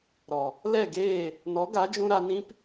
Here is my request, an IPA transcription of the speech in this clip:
ɾɔ˨ | lɛ˦˨ɡeː˦˨ | nɔ˨˦ɡa˨˦d͡ʒũ˧ ɾa˧nĩ˦p

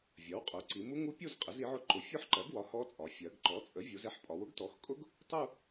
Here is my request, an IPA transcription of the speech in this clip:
vʲɜ˩˥wqʼʊ˩˥ ǀi˩˧mu˦˥ŋu˦˥pʲu˥˧z qʼɪ˩˥zi˩˥ʕʊ˦˥ ǃʊ˩˥ fʲʊ˦˥ħǃɜ˩˥ɡwɒ˩˥ hɔ˦˥t͡sʼɒ˩˧ fʲɜ˩˧ɡ ǃɔ˩˥t͡sʼə˩˥vʲu˩˧z ɛ˦˥ħ pʼɒ˩˧wʊ˦˥ɡtɔ˩˥xkʼʊ˦˥ɡ | tˤu˥˧

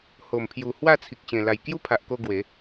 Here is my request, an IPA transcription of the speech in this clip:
ho˨˩mpʰju˨˩ hwa˥˧t͡sʰi˨k̚ɕẽ˨˩ la˨˩jkju˥˧pʰa˨ʔko˧ ɡwe˨˦

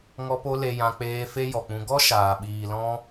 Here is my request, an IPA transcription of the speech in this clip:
ŋɔ˧po˧ le˧jã˧ k͡peː˧ fe˦jɔ˨k͡pũ˧ ɡɔ˦ʃaː˨ɓiː˨lɔ̃˧

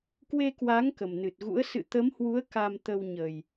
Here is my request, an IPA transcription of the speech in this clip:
kwe˧kwa˨˦ŋ kə˨˩mnɨ˨˩t̚ɣṵ˧˥ə̯ sɨ̰˧˨ t̪ə˨˦mhwu˨˦ə̯ ka˧mt̪ə˧wɲə˨˩j

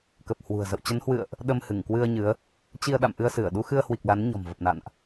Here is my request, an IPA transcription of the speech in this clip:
kə˨˩p̚hwṳ˨˩ə̯ zə̰˧˨wt͡ɕə˨˦nhwɨ̰˧˨ə̯ʔ | ɗə˧mhɨ˧˩ŋkwɨ˧ə̯ ɲɨ˨˦ə̯ | t͡ɕi˧ə̯ɗa̰˧˨m ʔɨ˧ə̯sɨ˧˩ə̯ ɗu˧xɨ˧ə̯hwi˨˩k̚ la˨˦nɲɔ̤˨˩mvə˨˩p̚na̰˧˨nʔ

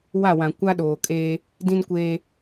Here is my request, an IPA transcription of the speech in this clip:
wa˦˨wã˨ kʷa˦ɗoː˨kʼeː˦ | dĩ˦nkʷeː˦

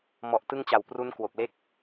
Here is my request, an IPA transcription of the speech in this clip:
mɔ˨˩ʔtɯ˧ŋt͡ɕa˨˩w pru˦˥nkwo˨˩k̚le˥˩k̚

